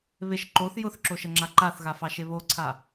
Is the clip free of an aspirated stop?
no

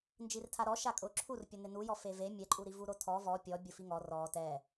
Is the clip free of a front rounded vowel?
yes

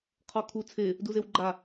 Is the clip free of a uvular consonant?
no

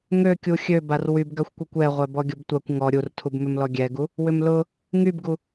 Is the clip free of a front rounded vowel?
no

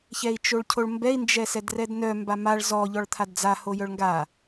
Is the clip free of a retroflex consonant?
no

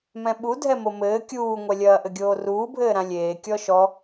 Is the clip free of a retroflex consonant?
yes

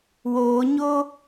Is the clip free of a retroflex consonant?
yes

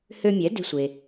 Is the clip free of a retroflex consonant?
yes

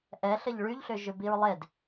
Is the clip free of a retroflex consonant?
no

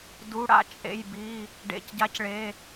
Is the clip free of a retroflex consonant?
no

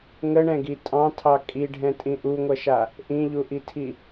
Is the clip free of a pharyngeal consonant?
yes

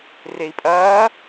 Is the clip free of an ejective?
no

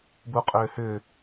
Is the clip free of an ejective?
no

